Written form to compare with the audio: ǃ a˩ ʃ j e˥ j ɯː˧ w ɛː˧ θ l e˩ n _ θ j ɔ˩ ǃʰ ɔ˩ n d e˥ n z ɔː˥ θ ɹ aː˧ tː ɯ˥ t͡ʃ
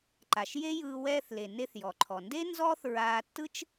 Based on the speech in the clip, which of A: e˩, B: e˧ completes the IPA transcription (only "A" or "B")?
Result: B